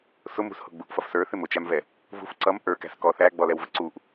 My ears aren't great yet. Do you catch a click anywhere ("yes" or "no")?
yes